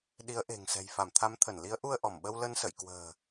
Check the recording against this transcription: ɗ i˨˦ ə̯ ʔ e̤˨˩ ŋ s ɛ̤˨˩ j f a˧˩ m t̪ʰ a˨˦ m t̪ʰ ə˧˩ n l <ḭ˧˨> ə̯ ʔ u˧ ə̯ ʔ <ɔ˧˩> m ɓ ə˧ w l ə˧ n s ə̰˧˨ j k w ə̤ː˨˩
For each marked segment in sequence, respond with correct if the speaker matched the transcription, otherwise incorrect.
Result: incorrect: i˨˦, correct

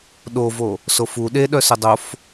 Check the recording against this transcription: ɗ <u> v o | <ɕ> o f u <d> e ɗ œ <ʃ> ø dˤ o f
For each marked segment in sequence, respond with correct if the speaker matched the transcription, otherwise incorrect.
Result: incorrect: o, incorrect: s, incorrect: ɗ, incorrect: s

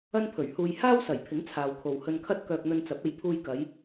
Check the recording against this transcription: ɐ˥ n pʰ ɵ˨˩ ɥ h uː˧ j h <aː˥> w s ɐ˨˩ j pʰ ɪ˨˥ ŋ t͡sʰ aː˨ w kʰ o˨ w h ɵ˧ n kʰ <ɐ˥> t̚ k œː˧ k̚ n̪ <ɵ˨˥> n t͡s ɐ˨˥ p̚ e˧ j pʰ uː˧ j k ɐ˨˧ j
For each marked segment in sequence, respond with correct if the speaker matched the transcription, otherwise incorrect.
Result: correct, correct, incorrect: ɵ˧

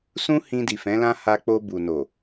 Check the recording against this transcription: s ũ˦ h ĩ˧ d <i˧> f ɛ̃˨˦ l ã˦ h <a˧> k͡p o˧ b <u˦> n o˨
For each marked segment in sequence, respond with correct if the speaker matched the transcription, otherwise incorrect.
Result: incorrect: i˨, correct, incorrect: u˨

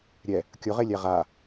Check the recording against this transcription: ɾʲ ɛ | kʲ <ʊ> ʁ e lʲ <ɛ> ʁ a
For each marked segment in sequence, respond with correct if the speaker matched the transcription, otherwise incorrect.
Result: correct, correct

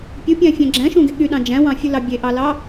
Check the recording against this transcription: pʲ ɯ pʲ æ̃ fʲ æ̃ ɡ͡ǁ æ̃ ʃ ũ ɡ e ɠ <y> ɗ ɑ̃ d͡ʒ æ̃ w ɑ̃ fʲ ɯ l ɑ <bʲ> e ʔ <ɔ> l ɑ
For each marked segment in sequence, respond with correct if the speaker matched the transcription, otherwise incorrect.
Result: correct, correct, incorrect: ɑ

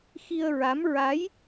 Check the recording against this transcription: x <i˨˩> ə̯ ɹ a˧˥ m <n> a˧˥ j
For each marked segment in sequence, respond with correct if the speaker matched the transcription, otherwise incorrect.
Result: incorrect: i˧, incorrect: ɹ

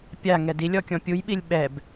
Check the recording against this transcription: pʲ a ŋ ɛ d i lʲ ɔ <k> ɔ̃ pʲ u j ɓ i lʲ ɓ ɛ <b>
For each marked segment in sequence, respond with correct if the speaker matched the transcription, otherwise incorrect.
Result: incorrect: kʲ, correct

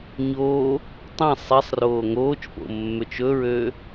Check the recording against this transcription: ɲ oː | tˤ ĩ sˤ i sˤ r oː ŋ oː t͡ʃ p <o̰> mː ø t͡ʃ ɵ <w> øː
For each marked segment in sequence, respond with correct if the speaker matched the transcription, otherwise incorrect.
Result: correct, incorrect: ɹ

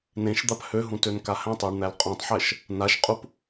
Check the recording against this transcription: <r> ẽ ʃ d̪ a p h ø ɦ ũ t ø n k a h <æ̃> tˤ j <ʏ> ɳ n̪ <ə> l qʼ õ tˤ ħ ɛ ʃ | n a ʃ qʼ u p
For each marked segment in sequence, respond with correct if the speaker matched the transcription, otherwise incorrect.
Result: incorrect: n, correct, incorrect: ə, incorrect: æ

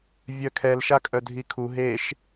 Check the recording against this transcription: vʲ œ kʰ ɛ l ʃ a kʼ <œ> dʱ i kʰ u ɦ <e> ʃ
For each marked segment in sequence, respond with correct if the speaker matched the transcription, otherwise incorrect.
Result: correct, correct

